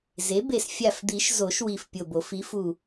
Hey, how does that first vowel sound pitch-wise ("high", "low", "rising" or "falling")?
rising